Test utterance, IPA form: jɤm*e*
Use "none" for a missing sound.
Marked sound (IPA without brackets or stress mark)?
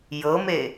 e